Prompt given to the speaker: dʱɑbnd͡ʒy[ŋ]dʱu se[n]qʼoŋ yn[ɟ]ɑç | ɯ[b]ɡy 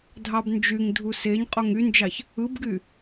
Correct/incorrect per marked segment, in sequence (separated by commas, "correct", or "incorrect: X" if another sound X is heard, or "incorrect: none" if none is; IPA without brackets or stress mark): correct, incorrect: ɲ, incorrect: d͡ʒ, correct